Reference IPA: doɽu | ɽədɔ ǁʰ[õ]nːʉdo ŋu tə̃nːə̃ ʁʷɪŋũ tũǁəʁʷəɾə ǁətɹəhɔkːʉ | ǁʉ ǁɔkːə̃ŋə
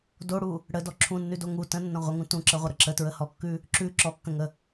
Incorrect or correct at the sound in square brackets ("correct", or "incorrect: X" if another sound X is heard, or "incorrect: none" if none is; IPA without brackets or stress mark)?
incorrect: ũ